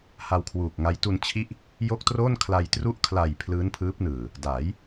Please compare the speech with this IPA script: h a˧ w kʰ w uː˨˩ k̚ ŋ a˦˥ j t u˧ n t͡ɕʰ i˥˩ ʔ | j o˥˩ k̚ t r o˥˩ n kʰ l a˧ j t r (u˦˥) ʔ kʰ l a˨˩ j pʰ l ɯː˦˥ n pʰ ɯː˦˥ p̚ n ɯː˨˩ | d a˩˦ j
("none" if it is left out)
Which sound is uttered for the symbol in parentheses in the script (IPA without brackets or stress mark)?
u˦˥